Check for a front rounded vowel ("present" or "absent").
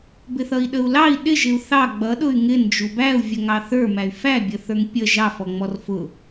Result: present